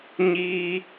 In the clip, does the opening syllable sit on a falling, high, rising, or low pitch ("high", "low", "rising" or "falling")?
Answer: high